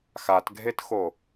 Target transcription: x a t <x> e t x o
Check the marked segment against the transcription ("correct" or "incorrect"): incorrect